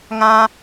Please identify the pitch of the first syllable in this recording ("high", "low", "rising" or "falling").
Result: high